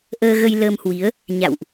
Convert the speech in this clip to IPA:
ʔ əː˧ ɣ ə˧ j l əː˧ m h w i˨˦ ə̯ | ɲ a̰˧˨ w ʔ

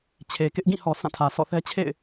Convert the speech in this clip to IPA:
t͡ɕʰ e˨ k ɪ˦ ʔ ɡ ĩ˦˨ h ɔ˨ sʰ ã˦˨ tʰ ä˨ sʰ ɔ̰˦˨ θ ɛ˦ t͡ɕʰ ḛ˦˨ ɪ̯

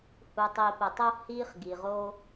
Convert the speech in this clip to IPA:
h u˧ tˤ i˧ p ə˧ tˤ o˦ h i˦ χ ɡ i˧ ʁ o˦

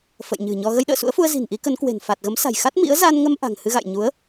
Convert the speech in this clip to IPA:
f ə̰˧˨ j ɲ ɨ̤˨˩ ɲ ɔ˧ ɣ ə˧ j ɗ ə̰ː˧˨ s ṵ˧˥ ə̯ f u˧ ə̯ z i̤˨˩ n ʔ i˨˦ k ə˨˦ n k w e̤˨˩ n f a˨˩ t̚ ɣ ə˨˦ m s a̤˨˩ j x a˦˥ t̚ m ḭ˧˥ ə̯ z a˧ n ŋ ə˧ m ʔ a̤˨˩ ŋ h ɨ˧ ɣ a̰˧˨ j ɲ u˨˦ ə̯

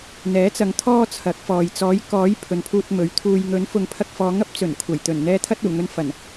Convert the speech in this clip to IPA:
n̪ ɛː˨˥ t͡s ɐ˨˧ ŋ t̪ʰ ɔː˧ t͡sʰ ɐ˨˥ k̚ f ɔː˨ j t͡s ɔː˨˥ j k ɔː˨˥ j pʰ ɵ˨˧ n pʰ uː˧ t̚ m ɵ˨˥ ɥ t̪ʰ uː˨ j ŋ ɵ˨˥ n f ʊ˨ ŋ pʰ ɐ˧ k̚ f ɔː˨˧ ŋ ɐ˥ p̚ t͡s ɵ˨˩ n kʷʰ ɐ˨˩ j t̪ ɵ˨˩ n n̪ ɛː˧ t̪ʰ ɐ˧ t̚ uː˨˩ ŋ ɵ˨ n f ɐ˨˩ n

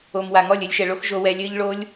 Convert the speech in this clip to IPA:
o˨ m w a˨ ŋ ɔ˦˨ lʲ ɘ˧ lʲ ʃ ɛ˨ ɭ o˧ x ʒ o˧ w ɛ˧ lʲ ɘː˦ ʎ ɭ o˦ lʲ

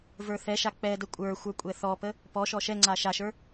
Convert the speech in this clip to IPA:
v ə˞ θ ɛ ʃ a k͡p ɛ d ə kʷʼ ə˞ xʷ ə˞ kʷʼ ɛ θ ɔ p ə | p ɔ ʃ ɔ ʃ ɛ ŋ͡ǀ a ʃ a ʃ ə˞

